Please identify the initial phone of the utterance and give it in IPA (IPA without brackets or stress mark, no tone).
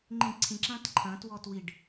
ŋ͡ǃ